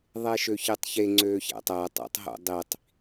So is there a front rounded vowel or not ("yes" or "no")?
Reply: yes